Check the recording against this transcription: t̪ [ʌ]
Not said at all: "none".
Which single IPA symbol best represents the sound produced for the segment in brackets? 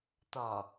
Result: ɒ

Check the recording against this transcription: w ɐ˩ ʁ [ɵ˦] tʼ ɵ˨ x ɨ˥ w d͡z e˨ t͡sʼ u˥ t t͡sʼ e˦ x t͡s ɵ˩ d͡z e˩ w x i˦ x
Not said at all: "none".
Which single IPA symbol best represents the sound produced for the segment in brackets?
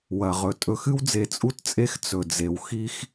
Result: ɵ˩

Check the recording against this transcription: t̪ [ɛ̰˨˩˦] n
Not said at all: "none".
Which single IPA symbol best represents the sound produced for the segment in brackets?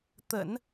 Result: ə̰˨˩˦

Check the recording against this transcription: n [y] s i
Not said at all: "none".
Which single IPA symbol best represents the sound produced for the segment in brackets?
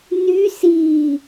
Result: y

